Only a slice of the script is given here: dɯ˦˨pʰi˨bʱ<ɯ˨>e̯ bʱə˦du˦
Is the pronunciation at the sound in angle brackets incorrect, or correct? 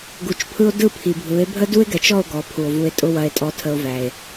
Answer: incorrect: ɯ˨˦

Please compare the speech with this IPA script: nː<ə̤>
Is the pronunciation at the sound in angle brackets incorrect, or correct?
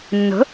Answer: correct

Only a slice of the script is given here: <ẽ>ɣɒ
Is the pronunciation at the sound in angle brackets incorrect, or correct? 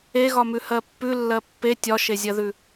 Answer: incorrect: e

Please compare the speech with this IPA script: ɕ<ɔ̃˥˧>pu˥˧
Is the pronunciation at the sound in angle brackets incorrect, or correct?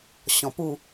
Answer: incorrect: ɔ̃˨˩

